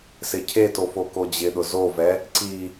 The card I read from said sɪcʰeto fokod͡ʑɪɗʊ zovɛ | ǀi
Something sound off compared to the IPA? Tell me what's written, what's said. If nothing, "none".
none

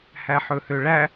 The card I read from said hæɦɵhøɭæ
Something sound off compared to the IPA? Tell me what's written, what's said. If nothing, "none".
ɦ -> ħ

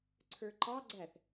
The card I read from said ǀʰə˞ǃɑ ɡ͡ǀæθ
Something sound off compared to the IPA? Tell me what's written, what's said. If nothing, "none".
none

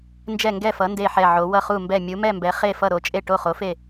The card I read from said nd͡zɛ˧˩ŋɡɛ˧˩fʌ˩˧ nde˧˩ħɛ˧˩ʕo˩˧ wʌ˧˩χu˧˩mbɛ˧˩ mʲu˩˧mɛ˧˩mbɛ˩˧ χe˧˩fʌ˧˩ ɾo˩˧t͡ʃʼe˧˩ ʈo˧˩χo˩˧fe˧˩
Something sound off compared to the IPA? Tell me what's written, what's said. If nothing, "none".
d͡z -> d͡ʒ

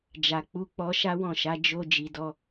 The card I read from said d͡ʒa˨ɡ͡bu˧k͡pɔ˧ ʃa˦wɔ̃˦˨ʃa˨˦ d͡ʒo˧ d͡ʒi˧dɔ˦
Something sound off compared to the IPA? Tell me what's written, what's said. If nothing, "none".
ɡ͡b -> k͡p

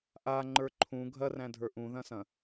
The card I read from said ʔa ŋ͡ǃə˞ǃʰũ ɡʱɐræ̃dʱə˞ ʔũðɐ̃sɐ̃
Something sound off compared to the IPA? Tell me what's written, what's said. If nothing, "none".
none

